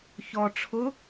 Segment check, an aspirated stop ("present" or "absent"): present